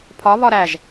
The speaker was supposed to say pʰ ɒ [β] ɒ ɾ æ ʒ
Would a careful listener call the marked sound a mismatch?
no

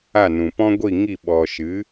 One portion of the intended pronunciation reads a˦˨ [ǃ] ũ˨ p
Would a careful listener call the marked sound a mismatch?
yes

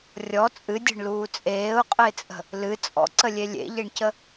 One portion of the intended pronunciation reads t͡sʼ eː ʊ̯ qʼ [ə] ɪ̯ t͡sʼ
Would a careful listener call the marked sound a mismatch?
no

